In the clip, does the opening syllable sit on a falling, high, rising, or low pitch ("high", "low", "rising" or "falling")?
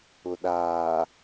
low